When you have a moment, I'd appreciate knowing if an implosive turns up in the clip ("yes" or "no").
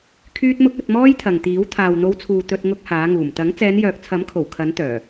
no